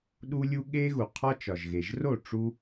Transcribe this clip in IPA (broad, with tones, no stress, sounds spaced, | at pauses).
ɗ u˦ lʲ u˦ ɠ e˦ ɣ u˨ qʰ ɒ˦ t͡ʃ ɒ˨ ʒ ɣ e˨ ʒ r o˦˨ ʈ͡ʂ u˦